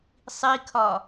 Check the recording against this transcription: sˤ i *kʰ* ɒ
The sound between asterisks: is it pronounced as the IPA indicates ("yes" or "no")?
yes